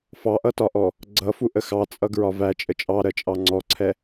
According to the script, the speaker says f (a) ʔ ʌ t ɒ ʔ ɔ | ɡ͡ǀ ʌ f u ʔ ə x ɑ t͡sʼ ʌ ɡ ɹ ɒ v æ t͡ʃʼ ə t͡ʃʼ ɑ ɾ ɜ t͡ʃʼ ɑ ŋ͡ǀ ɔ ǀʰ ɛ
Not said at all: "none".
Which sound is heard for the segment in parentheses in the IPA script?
ɑ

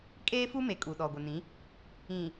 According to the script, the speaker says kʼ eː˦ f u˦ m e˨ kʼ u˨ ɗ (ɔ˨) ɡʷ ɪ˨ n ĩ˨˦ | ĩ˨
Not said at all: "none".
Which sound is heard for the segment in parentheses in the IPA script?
ɔ˨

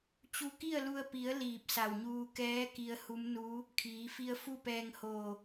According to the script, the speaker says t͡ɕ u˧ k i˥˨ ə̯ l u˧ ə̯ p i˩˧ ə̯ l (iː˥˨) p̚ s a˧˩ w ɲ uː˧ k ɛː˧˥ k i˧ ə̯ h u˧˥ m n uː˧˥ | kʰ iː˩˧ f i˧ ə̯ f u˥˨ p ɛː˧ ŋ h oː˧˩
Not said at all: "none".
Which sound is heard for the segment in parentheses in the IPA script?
iː˧˩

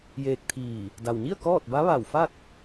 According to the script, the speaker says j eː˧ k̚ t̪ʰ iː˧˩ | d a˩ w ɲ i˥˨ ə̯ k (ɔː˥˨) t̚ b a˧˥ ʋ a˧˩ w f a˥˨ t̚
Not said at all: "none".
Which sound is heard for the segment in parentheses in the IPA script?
ɔː˥˨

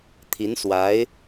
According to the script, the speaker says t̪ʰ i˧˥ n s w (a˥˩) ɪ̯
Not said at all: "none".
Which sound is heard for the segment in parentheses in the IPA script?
a˧˥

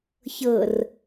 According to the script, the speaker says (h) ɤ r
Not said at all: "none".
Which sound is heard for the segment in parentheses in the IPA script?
ç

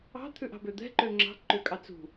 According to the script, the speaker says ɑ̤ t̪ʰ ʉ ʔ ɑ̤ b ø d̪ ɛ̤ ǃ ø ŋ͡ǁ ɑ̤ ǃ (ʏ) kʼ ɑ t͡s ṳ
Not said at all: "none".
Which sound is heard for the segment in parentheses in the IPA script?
ʏ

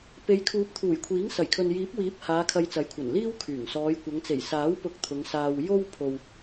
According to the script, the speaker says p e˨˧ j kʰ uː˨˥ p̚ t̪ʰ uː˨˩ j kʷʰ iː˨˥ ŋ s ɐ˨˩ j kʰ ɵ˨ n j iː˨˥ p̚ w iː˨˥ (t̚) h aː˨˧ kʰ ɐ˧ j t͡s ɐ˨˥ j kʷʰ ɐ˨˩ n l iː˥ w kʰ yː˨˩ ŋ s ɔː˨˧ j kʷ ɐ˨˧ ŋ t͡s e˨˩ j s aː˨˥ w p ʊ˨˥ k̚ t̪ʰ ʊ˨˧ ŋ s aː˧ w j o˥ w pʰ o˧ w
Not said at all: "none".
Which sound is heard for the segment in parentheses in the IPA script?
p̚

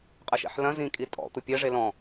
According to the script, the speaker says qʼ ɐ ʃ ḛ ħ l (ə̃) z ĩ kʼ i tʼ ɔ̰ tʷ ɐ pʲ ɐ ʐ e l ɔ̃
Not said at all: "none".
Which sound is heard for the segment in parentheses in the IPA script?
ɐ̃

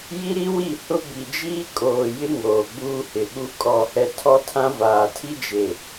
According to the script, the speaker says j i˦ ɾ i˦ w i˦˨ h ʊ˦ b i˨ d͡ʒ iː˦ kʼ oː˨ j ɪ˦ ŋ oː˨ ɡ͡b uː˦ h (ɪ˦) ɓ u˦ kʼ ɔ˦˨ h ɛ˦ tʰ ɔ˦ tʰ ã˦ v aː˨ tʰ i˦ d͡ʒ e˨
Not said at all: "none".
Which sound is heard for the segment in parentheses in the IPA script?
ɪ˨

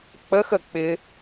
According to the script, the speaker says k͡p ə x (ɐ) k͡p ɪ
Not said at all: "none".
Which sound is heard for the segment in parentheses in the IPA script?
ə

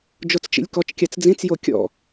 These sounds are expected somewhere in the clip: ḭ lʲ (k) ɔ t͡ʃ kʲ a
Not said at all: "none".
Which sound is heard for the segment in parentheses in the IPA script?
k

